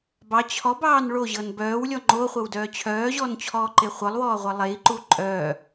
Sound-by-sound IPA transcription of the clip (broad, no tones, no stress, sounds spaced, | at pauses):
b ɑ t͡ɕʰ ɔ b ɑː n ɭ o ʑ ɤ n b œː w lʲ ɔ ŋ͡ǃ o χʷ ɤ w d œː t͡ɕʰ œː ʑ ɔː n t͡ɕʰ ɔː ǃ e χʷ ɤ lˠ w ɔː ʁʷ ɤ lˠ e i̯ ǃ u ǃʼ œː